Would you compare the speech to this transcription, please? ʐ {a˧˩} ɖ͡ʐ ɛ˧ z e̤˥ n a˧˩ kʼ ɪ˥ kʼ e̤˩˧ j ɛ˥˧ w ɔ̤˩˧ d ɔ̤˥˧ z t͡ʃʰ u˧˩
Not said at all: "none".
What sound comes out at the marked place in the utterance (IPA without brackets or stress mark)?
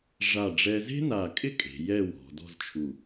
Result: a˧˩